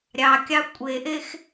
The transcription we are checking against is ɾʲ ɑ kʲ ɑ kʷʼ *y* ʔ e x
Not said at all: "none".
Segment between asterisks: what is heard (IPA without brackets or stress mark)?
e